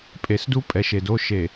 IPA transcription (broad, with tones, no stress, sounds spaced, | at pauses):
pʼ e˨ s d u˦ pʼ ɛ˨ ʃ e˨ d o˦ ʃ e˨